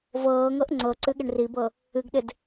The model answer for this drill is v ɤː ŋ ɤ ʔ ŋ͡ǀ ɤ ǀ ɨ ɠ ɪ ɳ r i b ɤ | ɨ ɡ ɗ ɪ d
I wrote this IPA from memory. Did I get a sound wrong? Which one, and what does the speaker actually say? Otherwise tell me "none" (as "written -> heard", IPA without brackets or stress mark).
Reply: none